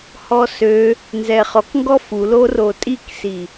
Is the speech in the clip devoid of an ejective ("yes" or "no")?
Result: no